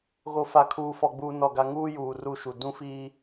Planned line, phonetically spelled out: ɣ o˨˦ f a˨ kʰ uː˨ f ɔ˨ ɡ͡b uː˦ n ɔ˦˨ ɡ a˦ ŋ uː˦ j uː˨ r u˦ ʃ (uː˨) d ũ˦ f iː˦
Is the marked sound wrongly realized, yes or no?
yes